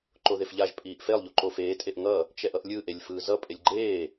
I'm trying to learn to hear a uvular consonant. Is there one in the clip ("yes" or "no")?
no